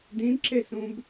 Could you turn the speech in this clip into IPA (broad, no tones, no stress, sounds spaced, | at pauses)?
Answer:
d ĩ d ǁ e s ũ b